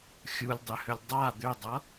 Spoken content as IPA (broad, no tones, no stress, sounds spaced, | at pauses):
xʲ u lʲ dˤ ʏ h ʏ lʲ dˤ a d̪ ʏ dˤ ʌ